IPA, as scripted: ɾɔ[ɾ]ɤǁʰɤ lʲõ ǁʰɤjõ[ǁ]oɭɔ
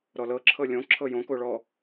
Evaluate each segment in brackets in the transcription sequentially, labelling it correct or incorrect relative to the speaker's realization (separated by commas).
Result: incorrect, incorrect